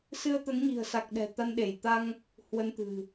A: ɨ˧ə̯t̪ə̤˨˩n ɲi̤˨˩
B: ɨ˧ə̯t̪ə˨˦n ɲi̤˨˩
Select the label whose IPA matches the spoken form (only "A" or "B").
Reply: B